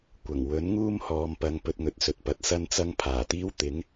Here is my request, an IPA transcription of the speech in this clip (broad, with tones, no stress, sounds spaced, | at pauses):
kʷ ɐ˨˩ ŋ w ɵ˨˥ n ŋ uː˥ m h ɔː˨˧ m p ɐ˨˧ ŋ p ɵ˧ t̚ ŋ ɵ˨˥ t̚ s ɵ˨ t̚ p ɐ˨˥ t̚ s ɐ˥ n t͡s ɐ˥ ŋ pʰ aː˨˩ t̪ iː˥ w t̪ ɪ˨˥ ŋ